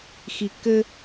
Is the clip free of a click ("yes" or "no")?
yes